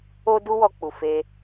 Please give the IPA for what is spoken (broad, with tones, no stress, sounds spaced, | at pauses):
o˦ d u˦ w ɔ˧ k͡p u˨ f e˧